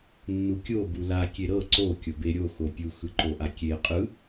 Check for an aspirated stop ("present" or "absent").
absent